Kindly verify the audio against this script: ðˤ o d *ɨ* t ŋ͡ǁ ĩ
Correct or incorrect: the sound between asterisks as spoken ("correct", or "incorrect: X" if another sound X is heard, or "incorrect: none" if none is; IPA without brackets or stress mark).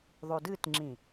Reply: correct